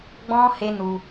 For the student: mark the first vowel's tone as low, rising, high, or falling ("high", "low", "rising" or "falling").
high